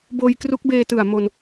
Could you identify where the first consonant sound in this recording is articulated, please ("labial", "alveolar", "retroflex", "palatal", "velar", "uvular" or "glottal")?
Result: labial